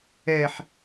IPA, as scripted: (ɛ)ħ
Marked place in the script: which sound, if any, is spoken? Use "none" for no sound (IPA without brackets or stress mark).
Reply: ɛ